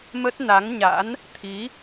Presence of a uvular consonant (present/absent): absent